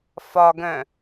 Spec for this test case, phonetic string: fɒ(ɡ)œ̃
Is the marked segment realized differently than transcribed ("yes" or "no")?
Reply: no